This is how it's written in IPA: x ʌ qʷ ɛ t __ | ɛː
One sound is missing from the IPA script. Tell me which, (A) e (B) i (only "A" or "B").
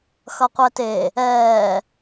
A